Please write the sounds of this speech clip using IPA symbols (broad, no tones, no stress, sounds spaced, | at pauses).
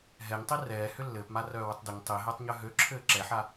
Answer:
ɦ ɛ ɲ tˤ i r ɛː h ʏ lː ɘː p m a r œː w ʏ tˤ d ʏ ɲ tˤ i ɦ ɘː tˤ ɲ œ ɦ ø ǁʰ ɘː ǁ ɛ ħ a